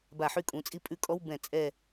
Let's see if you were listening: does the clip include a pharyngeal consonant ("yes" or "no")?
yes